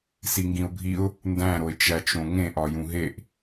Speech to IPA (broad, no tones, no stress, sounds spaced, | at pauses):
s i ŋ ɡ ĩ ʊ̯ bʱ i ʊ̯ | n d æ̃ ɾ o ɪ̯ t͡ʃ æ t͡ʃ õ ŋ ẽ ʔ ɒ j ũ ɦ e ʔ